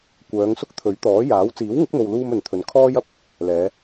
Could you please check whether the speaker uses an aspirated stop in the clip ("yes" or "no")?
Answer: yes